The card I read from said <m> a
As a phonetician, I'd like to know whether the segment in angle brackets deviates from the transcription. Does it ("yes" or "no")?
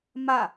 no